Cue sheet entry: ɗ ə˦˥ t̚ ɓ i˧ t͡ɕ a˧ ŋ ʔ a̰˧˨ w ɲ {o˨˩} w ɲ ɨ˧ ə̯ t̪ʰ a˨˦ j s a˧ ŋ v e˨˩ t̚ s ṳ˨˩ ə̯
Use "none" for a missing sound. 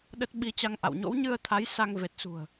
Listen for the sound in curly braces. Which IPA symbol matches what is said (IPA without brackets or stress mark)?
o̰˧˥